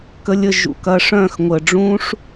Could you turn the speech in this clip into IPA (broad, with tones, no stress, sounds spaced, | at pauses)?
k ə˧ lʲ ə˦˨ ʒ ṵ˧ k ɐ˧ ʂ œ̃˦˨ x ŋʷ ə˨ ɖ͡ʐ ũ˧ ʂ